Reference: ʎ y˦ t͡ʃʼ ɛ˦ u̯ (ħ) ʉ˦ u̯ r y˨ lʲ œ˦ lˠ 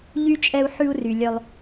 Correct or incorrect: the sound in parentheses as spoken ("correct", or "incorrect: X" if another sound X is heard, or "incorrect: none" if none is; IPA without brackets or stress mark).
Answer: correct